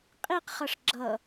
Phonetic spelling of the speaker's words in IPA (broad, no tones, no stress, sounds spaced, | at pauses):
qʼ i q χ ʌ ʂ ɡ͡ǁ ʌ